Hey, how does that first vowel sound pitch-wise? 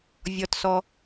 low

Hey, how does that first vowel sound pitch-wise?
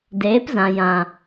rising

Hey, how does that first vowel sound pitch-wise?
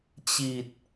low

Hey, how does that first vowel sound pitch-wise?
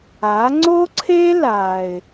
rising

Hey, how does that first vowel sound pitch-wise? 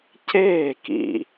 falling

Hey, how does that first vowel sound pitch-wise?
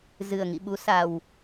low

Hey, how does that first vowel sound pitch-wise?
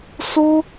high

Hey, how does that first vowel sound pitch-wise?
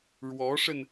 rising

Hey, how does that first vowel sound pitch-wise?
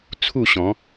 falling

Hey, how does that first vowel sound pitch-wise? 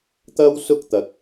high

